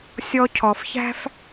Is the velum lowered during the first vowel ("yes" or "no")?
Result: no